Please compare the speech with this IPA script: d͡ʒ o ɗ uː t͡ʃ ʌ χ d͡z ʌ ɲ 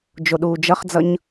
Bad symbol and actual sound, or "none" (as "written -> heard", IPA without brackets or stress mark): t͡ʃ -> d͡ʒ